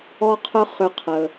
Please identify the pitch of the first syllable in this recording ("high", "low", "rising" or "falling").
high